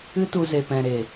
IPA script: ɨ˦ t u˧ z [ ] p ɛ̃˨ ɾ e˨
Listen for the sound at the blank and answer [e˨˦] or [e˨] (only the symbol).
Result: e˨